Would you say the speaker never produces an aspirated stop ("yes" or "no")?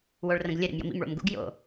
yes